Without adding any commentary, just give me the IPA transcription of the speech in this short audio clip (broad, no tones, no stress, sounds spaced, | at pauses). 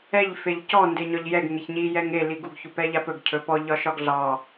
ɛ ʎ f e ʎ c ɔ n d e ɲ ɒ ʎ j ɛ ɡ ŋ e ç ɲ i j ɛ ŋ e l i ɡ u ɡ ç u p ɛ ʎ a p ɵ ɡ cʰ ɵ p ɔ ʎ ɒ ʃ ɒ ɡ ɮ ɑ